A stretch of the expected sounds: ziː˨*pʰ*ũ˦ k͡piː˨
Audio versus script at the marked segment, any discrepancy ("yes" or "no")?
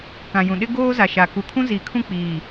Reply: yes